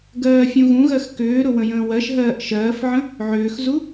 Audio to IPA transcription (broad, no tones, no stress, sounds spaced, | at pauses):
ɡ ɜː fʲ ũ ɣ ũ ɣ ɜ x k ʏː ɾ ʊ w ə̃ j ə̃ː w ɜ ʃ ɦ ɜː ʔ ʃ ɜː f ʕ ə̃ | ʕ ʏː x z u